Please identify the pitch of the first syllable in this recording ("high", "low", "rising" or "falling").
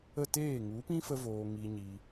falling